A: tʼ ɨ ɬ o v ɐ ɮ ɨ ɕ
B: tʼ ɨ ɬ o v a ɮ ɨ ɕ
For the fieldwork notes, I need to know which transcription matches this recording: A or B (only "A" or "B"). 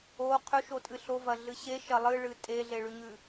A